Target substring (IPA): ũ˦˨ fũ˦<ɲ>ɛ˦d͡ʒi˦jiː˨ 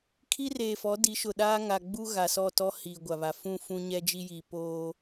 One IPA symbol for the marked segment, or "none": ɲ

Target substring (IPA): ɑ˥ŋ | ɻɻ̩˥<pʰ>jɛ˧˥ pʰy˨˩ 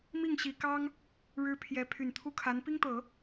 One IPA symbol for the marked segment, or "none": pʰ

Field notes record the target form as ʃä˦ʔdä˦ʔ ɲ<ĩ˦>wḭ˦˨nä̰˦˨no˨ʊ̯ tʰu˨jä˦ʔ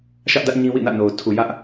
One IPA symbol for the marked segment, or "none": ĩ˦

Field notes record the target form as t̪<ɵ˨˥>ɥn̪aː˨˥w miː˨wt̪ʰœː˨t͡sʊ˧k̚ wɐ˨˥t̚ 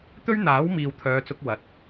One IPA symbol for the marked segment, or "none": ɵ˥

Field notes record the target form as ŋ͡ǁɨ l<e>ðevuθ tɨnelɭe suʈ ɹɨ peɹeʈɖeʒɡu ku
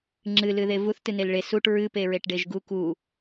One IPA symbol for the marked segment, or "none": ɨ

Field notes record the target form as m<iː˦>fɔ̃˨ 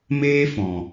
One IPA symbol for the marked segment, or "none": eː˦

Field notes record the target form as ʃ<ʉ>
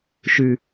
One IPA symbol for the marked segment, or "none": ʉ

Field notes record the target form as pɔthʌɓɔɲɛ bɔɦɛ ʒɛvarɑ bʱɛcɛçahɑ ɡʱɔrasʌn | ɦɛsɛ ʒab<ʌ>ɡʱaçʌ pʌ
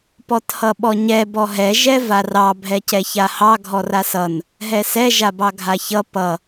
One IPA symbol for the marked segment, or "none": ɑ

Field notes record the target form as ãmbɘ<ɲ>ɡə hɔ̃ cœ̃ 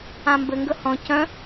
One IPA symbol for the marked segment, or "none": ŋ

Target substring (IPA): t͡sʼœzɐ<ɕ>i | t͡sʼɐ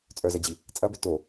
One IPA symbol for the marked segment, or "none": d͡ʑ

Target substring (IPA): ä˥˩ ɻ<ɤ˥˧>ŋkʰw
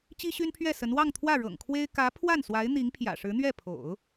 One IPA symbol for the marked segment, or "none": ɤ̰˨˩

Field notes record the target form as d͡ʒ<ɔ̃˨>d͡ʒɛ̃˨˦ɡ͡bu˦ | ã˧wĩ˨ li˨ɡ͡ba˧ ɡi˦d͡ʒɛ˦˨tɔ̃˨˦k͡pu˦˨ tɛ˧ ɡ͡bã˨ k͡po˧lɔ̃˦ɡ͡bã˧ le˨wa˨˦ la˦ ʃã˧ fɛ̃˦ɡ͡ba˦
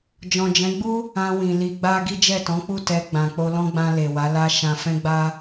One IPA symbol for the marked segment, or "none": ɔ̃˨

